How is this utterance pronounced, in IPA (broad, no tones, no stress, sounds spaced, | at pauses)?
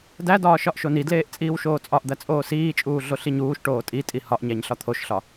d æ d ɒː ʃ ɒ ʔ ʃ o n i d l eː ʔ t͡sʼ iː w ʃ oː t͡sʼ ɒ ʔ d̪ æ t͡sʼ oː s iː t͡ʃʼ uː ɮ o ɬ i ɲ uː ʃ ʈ oː tʼ i tʼ i h ɒ ʔ ɲ æ ɲ ɬ ɒ t̪ʰ o ʃ ɬ ɒ